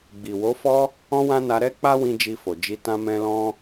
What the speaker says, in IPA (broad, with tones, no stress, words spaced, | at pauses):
ɡ͡bi˨wo˨˦fɔ˦ | ɔ̃˦wã˦na˧ ɾɛ˦k͡pa˦wĩ˧ d͡ʒi˧fo˨ d͡ʒi˧tã˦mɛ̃˦ lɔ̃˦